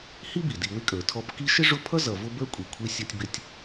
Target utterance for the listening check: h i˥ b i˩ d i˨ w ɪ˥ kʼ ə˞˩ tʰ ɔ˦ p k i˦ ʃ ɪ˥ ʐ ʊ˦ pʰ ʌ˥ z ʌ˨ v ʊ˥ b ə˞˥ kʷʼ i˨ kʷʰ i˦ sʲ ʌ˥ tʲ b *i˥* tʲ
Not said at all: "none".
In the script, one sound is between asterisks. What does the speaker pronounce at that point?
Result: ɪ˥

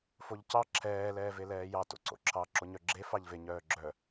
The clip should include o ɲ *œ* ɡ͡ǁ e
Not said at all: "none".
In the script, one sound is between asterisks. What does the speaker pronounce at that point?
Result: œ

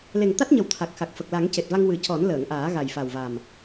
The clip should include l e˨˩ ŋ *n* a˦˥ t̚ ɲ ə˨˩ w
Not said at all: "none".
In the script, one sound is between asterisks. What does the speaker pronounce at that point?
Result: t̪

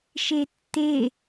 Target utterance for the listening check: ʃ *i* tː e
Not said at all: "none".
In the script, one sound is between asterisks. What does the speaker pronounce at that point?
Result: e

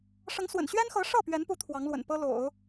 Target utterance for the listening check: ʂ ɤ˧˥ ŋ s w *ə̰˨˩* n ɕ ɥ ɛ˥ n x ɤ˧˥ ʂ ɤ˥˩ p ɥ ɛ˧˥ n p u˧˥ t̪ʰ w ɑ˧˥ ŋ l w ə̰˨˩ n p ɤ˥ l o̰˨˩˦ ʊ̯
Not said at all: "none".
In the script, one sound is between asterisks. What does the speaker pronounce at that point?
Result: ə̰˨˩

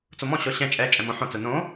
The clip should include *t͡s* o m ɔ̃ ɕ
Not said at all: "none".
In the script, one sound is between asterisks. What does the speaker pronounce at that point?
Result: t͡s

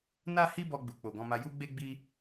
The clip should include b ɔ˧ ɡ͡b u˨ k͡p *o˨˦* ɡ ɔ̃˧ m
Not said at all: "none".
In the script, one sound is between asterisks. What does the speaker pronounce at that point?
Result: o˨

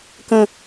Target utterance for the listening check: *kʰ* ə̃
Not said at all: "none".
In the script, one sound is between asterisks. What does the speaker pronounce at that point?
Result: k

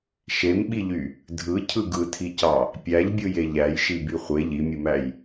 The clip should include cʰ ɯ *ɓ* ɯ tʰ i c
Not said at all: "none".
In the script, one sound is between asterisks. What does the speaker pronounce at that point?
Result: ɡ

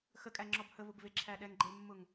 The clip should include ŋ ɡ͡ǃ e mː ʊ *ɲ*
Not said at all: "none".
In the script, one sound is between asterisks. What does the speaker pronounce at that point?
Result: ŋ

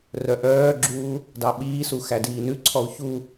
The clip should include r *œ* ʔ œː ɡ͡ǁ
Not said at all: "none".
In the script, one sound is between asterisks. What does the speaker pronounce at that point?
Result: œ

